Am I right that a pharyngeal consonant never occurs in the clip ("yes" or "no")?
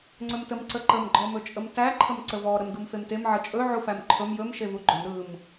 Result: no